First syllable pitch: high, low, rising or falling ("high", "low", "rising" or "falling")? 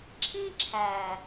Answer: high